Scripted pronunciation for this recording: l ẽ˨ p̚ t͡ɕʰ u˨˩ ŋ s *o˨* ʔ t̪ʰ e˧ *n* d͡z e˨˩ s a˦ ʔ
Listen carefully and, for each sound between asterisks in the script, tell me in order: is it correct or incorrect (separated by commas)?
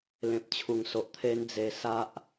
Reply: correct, correct